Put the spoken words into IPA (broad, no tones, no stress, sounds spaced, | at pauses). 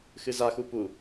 x ɨ z a x u p u